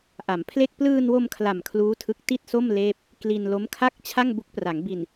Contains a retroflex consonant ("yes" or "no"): no